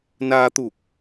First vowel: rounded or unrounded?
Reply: unrounded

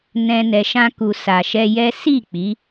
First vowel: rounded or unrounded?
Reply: unrounded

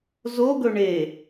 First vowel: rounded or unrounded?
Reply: rounded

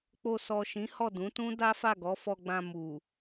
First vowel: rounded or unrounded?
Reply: rounded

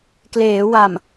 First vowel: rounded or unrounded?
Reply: unrounded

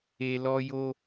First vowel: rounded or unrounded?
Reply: unrounded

